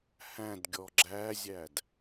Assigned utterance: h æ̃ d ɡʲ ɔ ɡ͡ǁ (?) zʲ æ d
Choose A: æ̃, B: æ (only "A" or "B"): B